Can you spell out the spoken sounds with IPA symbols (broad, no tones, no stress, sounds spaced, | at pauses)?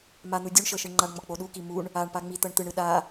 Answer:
m a n̪ u dʲ u ɳ ʃ ɤ ʃ ɯ ɳ ŋ͡ǃ a ɳ ŋ͡m ɔ k͡p o ɗ u k i m u ɳ | a ɳ p a ŋ͡m i t̪ ɤ ɳ t̪ ɯ ɳ ɯ ɗ a